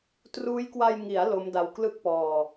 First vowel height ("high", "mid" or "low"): high